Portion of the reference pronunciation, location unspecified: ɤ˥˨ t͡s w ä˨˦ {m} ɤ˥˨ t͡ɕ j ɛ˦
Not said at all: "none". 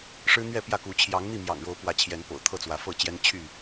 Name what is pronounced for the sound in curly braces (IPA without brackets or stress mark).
f